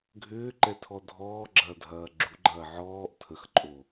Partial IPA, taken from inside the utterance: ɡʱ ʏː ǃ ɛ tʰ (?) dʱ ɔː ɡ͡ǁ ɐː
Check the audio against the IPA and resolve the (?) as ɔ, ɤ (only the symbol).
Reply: ɔ